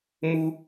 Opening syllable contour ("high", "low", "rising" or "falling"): high